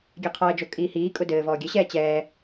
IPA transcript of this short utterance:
ɡʲɛqʰɔə̯d͡ʒo kʼiːhiːkʼʊ dɘː vɔːɡʲɘɕɛː t͡ɕɛː

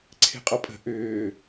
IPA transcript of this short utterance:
ǀʰe̤qʼɔpʼə̤ ʔʏː

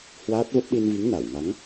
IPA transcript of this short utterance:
hwaː˦˥t̚və˦˥p̚ ɗi˧nvi˨˦ŋ na˧˩wŋa˨˦ŋ

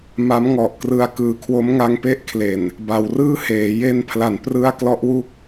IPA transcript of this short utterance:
ma˦˥m ŋɔ˨˩ʔkrɯ˧a̯ kɯː˨˩kʰwo˦˥mŋa˧ŋpe˥˩ʔ kʰle˨˩n | ba˩˦wrɯː˥˩heː˩˦ je˧n pʰla˩˦n prɯ˦˥a̯ klɔ˦˥ʔwu˥˩k̚

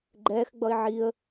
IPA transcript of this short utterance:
ɡ͡ǃɛːxɡ͡bʌɪ̯ ʕiə̯

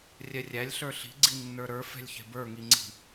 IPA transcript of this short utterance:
rʲɛrʲælʲ ɬə˞ɬi̤ ɡ͡ǀinːə˞ɾə˞ fɛ̤lʲçɛ̤bə˞ ŋiŋ͡ǀi̤

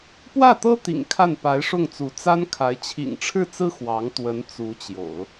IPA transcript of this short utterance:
pwä˥˩t̪ɤ˥t̪ḭ˨˩ŋ kʰa˥˩npa˧˥ɪ̯ʂʊ˥˩ŋt͡su˧˥ t͡sa˥nkʰa˧˥ɪ̯ t͡ɕʰḭ˨˩ŋʈ͡ʂʰɻ̩˥˩t͡sɹ̩˥ xwɑ˧˥ŋ t̪wə˧˥n t͡su˧˥t͡ɕjo̰˨˩˦ʊ̯

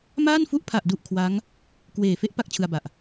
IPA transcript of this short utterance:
maː˥˩nfu˦˥ʔ pʰa˨˩ʔdu˨˩ʔ kʰwa˦˥ŋ | kweː˨˩ fe˦˥ʔ pa˥˩k̚t͡ɕʰɯ˧a̯ba˨˩ʔ

